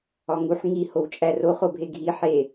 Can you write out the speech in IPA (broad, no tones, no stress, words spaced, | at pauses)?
ɒŋuħ ŋi howt͡ʃʼæro χobʱeɡʱi ħe